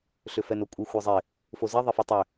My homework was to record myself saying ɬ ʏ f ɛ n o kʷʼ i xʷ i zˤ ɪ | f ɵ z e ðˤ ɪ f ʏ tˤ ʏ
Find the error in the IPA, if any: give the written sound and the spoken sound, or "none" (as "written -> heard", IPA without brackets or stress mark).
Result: ɵ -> o